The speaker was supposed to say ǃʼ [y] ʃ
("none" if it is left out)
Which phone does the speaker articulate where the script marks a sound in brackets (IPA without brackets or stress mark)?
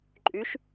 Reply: y